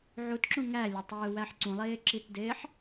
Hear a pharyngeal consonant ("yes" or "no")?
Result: yes